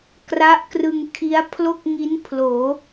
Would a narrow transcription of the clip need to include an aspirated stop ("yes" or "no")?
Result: yes